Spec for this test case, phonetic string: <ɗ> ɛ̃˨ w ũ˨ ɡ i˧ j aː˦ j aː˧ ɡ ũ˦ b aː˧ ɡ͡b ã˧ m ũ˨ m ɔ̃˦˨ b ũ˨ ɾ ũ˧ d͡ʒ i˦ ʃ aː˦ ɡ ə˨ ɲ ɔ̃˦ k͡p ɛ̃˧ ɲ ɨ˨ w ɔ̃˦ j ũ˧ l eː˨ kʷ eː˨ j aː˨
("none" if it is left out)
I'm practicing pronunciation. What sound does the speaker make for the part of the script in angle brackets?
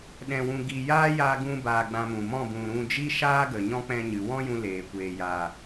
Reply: ɗ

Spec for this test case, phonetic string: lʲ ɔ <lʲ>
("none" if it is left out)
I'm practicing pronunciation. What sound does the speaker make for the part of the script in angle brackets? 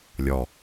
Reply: none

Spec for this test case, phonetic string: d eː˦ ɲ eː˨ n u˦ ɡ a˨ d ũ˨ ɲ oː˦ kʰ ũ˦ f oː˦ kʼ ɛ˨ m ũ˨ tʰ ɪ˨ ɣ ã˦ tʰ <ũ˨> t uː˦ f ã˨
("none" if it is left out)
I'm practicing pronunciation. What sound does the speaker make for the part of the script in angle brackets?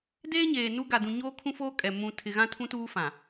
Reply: ũ˦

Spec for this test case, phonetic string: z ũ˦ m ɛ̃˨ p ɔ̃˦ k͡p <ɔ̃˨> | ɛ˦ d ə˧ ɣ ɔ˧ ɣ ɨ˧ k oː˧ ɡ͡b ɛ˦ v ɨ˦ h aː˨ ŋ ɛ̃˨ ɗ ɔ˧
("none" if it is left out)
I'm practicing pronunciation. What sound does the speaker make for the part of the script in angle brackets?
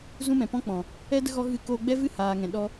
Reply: ɔ̃˨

